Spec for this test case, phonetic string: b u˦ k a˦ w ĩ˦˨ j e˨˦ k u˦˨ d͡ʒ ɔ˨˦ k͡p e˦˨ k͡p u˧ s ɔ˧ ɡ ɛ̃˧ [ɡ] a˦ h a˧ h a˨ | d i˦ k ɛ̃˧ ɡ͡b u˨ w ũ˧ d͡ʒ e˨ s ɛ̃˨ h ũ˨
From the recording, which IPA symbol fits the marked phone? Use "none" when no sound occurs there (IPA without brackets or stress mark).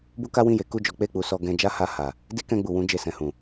d͡ʒ